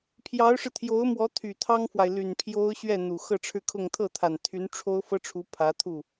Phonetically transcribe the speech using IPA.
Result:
pʰ j ɑ˧˥ ʊ̯ ʂ ɻ̩˧ t̪ʰ j o˧˥ ʊ̯ m w ɔ˧˥ t̪ʰ y˨˩ t̪ʰ ɑ˥ ŋ f w a˨ ɪ̯ l y˨˩ n pʰ j o˥ ʊ̯ ɕ ɥ ɛ˥˩ n̪ u˨˩ x ɤ˥˧ ʈ͡ʂʰ ɻ̩˥˧ kʰ ʊ˥˧ ŋ t̪ʰ ɤ˥˩ t̪ʰ a˨˩ n t̪ʰ y˧˥ n ʈ͡ʂʰ o˥ ʊ̯ f ɤ˥ ʈ͡ʂʰ u˧˥ pʰ ä˧˥ t̪ʰ u˥˩

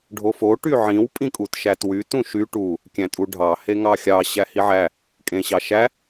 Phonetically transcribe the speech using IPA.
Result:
ɖʱ o f o ʈ y ʕ ĩ w pʼ ĩ kʼ u t ʃ æ t w y t ũ ʃ y ʈ u | kʲ æ̃ tʼ u ɖʱ ɑ h e ŋ ɑ xʲ ɑ ɕ æ h i ʕ æ | kʼ ẽ ɕ ɑ ʃ æ

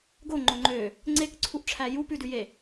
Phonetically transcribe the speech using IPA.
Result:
ɡ o ŋ͡ǃ o ŋ͡ǃ ø | ŋ͡ǀ e k ǀʰ u ʔ ʈ͡ʂʰ æ j u p ʉ d ʉ j e

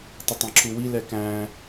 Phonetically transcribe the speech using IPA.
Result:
tˤ ə tˤ æ̃ ǁʰ u w i l ɛ k æ̃

